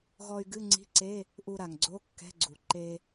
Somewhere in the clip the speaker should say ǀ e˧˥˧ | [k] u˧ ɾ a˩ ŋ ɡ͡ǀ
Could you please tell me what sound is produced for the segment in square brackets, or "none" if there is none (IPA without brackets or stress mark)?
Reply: ʔ